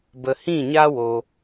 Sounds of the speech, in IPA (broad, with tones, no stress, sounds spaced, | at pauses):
b ə˨ h ĩ˦˨ ɲ a˦ w o˧